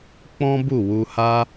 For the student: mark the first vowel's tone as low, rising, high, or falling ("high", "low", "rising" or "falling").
high